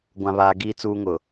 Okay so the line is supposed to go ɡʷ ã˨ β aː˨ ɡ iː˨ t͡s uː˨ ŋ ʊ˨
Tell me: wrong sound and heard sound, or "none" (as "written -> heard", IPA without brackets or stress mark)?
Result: none